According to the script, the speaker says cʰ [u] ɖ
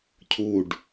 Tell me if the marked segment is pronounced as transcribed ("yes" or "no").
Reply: yes